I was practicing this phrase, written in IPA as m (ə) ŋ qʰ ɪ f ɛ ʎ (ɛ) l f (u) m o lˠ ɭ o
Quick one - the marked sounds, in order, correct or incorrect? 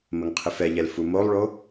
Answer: correct, correct, correct

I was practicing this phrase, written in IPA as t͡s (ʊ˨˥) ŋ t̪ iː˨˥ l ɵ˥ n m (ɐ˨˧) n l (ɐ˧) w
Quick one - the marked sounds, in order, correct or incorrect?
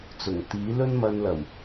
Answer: incorrect: ʊ˨˩, incorrect: ɐ˧, incorrect: ɐ˨˩

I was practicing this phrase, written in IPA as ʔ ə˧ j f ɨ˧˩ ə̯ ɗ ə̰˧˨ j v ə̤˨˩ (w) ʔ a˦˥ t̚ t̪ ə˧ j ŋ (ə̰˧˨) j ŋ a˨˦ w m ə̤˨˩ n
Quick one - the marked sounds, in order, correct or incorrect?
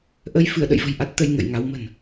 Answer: incorrect: j, correct

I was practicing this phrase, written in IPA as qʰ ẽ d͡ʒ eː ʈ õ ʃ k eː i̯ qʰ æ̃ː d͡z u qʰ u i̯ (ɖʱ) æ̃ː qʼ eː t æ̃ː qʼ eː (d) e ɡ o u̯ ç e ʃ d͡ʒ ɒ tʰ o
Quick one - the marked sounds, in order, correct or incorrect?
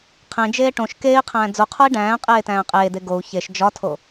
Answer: incorrect: ɖ, correct

